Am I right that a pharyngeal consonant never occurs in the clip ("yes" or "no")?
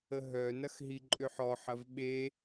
no